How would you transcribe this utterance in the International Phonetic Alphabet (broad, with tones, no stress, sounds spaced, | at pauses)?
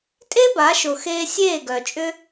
tʼ e˦ b a˨˦ ʃ ʊ˨ x eː˧ sʲ eː˦˨ ɡ œ˨ t͡ʃʼ ʏ˦